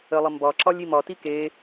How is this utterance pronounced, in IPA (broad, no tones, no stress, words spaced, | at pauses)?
əlˠə mbɒǁɒlʲ imɒti ke